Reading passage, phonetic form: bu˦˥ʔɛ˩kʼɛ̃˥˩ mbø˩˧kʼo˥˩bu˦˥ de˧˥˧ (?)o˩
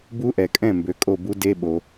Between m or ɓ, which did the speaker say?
ɓ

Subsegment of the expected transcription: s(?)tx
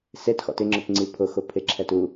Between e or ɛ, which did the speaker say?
e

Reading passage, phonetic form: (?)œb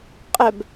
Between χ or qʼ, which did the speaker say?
qʼ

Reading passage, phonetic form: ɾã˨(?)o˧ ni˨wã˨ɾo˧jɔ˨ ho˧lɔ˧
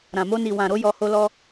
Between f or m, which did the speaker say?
m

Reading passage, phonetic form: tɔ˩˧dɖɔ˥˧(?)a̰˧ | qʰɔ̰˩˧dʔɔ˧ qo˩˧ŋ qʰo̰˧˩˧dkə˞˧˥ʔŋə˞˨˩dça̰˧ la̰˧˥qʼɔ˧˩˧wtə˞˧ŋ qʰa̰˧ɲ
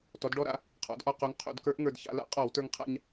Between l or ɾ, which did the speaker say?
ɾ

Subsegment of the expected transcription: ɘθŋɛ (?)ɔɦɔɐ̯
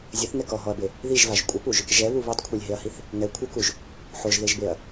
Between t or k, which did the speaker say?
k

